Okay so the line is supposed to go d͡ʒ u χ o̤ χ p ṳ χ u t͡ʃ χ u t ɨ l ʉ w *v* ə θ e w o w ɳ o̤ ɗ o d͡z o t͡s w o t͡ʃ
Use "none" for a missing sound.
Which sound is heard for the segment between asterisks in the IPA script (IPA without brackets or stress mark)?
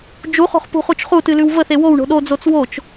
v